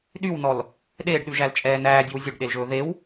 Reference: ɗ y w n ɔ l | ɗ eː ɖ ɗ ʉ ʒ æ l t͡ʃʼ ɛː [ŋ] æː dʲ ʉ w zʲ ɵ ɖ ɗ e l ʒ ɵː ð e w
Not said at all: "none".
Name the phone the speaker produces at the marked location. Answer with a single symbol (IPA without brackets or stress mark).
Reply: n